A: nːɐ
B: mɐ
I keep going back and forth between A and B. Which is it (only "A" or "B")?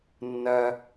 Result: A